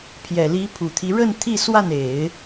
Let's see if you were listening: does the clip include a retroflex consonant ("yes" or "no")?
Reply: yes